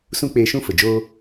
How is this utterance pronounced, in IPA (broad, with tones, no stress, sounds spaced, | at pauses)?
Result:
s ũ˦ k͡p eː˧ ʃ ũ˦ f ə˨ d͡ʒ oː˦